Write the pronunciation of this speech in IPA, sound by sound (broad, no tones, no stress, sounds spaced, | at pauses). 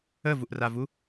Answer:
ə v u ʔ r a v u